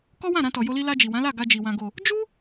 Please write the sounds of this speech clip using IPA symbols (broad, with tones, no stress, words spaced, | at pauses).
kɔ˦wã˦˨ɾã˧tɔ˨ jo˧li˧la˧d͡ʒi˨ wã˨˦la˦˨ ɡa˧d͡ʒi˨ wã˨ɡo˨ | d͡ʒu˦